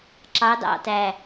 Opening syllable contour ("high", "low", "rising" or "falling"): rising